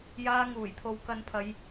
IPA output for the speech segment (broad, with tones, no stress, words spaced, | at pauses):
jaː˧ ŋuː˨˩jt̪ʰo˨w kɐ˨˧npʰɐ˨˧j